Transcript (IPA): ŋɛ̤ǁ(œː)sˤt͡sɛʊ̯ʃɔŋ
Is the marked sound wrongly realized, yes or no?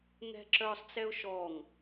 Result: no